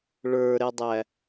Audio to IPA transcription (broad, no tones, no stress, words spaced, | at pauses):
ɭə˞ɾɛdˤæ